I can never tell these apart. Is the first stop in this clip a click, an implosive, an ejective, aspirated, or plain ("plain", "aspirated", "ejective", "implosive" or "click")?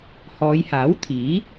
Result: aspirated